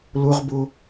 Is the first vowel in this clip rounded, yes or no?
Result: yes